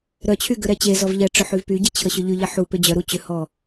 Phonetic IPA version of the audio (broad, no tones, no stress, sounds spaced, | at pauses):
ɾ œ t͡ɕʰ y ɡ ʏ ɾ ɛ t͡ɕ e z ɔ v ʎ ɛ ʈ͡ʂ œ ħ y v p y ɟ e t͡ɕʰ ə ɕ ʏ ʎ y ʎ ɛ ħ u p ʏ d͡ʑ œ ɾ u t͡ɕ ʏ h ɔ